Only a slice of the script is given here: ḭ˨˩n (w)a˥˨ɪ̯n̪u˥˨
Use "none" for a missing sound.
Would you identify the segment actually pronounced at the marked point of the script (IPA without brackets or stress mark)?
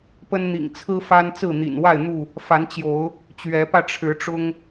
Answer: w